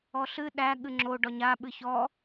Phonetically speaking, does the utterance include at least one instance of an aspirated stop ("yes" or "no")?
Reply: no